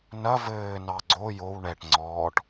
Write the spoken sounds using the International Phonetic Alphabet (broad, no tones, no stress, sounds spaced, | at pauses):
n ɐ v ɘː n ɑ ɡ͡ǀ o j o w ɳ ɛ ʈ ŋ͡ǀ ɔː ʈ